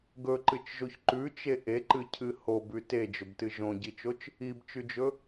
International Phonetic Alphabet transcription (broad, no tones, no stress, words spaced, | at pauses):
ɡɵǃɨt͡ʃʒoç ǃʉt͡ʃe ʔeǃɨcʰɨ hobʉ ted͡ʒɵbtɨ ʒõɟit͡ʃot͡ʃ | ibt͡ʃʉd͡ʒɵ